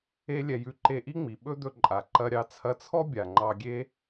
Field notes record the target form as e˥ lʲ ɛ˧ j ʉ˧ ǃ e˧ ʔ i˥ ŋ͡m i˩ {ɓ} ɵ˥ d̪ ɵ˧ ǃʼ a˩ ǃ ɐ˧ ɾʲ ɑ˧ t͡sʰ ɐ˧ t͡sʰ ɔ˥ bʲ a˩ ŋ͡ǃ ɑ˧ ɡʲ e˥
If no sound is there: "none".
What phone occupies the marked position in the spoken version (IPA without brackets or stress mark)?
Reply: ɓ